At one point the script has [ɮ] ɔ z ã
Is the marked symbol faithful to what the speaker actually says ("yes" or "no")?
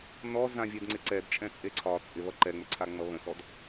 no